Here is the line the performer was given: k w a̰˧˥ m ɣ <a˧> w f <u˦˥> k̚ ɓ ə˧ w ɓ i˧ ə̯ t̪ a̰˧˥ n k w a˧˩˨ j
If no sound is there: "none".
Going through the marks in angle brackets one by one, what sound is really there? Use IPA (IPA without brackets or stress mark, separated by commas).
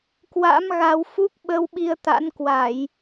a˧, u˦˥